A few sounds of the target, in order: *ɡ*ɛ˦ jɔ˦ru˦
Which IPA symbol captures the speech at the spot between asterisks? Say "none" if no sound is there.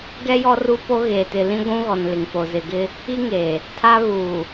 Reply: ɡ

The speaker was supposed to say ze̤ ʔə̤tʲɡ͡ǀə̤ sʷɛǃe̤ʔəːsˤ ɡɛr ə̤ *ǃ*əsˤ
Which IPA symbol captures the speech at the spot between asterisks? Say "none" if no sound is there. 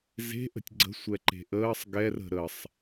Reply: ɾ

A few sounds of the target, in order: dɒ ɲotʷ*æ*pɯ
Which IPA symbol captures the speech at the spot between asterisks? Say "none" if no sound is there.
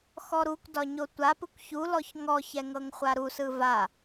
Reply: a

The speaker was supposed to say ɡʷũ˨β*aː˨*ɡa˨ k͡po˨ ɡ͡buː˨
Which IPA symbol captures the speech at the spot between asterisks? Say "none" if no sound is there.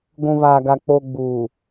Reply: aː˨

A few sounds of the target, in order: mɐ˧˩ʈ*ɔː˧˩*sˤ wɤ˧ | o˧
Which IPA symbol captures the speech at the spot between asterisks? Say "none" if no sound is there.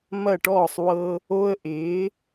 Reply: ɔː˧˩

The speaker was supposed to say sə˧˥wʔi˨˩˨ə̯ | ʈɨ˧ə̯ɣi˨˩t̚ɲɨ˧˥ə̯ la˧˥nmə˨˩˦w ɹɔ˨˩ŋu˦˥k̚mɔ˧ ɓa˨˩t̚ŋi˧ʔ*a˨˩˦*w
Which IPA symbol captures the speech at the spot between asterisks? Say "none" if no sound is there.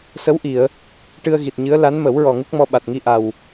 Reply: a˨˩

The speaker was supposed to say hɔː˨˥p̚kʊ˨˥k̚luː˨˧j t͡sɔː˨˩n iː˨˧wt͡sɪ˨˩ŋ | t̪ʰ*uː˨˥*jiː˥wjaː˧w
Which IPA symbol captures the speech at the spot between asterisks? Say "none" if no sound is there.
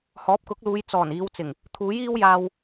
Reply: uː˨˥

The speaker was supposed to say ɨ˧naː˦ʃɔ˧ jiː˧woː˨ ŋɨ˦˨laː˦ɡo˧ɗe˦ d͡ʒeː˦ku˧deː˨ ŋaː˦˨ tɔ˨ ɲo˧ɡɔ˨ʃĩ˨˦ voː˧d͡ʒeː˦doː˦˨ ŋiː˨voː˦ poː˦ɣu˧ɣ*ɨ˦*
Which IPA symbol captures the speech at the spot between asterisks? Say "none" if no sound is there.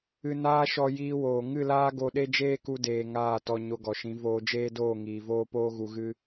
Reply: ɨ˦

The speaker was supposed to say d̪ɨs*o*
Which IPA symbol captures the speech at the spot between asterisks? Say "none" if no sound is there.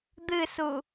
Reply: u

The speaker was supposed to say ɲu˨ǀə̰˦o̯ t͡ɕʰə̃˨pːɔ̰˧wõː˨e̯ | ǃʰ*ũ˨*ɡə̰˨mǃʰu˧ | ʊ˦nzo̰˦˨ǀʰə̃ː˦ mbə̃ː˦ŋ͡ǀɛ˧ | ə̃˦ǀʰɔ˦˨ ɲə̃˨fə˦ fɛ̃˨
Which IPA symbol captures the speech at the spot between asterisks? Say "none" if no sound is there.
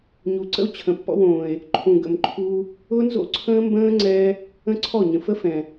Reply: ũ˨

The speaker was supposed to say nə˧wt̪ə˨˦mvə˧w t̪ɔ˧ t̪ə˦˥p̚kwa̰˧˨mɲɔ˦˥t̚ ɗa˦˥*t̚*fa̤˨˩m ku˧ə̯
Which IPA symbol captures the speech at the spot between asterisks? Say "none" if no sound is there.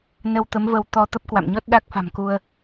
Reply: k̚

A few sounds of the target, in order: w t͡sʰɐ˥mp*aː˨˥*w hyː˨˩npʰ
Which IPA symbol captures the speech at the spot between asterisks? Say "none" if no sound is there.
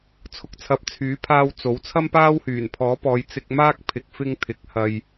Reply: aː˥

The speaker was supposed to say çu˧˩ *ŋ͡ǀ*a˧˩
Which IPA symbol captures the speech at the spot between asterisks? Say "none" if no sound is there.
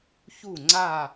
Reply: ŋ͡ǀ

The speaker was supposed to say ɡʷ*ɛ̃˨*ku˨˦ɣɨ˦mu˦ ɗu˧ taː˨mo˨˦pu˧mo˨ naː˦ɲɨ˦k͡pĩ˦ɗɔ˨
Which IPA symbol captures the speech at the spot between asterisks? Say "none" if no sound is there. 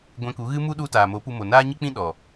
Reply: ɛ̃˧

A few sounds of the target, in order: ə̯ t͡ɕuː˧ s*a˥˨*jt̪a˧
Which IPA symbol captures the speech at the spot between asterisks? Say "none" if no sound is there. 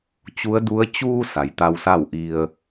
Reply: a˩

